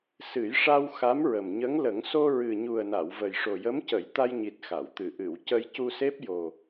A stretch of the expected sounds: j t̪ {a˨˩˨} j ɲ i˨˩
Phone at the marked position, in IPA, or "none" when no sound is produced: a˧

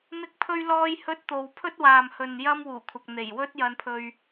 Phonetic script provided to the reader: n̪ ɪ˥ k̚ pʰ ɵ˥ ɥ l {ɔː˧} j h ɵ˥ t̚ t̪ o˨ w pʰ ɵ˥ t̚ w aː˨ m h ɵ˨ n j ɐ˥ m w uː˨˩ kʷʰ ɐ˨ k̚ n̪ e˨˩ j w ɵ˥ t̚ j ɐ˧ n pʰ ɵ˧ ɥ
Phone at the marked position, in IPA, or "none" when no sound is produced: ɔː˥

